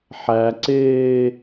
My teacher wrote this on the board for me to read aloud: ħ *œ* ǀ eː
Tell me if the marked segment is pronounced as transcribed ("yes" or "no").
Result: no